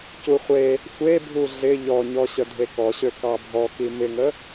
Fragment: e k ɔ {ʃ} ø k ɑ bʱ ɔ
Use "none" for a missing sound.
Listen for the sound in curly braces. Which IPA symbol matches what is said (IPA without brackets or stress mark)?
ɕ